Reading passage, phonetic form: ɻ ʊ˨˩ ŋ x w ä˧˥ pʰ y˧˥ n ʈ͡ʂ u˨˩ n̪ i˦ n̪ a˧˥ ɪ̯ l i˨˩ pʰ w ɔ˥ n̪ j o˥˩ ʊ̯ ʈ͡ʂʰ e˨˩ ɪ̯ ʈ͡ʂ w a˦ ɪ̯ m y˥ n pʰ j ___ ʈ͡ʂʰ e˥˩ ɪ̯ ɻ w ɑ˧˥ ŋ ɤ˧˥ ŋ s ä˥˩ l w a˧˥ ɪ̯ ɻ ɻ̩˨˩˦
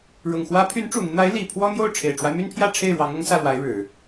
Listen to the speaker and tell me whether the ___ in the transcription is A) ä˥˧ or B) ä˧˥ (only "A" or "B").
A